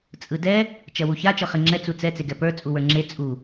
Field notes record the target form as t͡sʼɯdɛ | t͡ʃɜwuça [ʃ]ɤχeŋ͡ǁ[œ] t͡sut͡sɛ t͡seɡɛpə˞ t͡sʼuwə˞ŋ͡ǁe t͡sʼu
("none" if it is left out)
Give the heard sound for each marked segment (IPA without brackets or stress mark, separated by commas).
t͡ʃ, ɛ